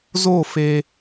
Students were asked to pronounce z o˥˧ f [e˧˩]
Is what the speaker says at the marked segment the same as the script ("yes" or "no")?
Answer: no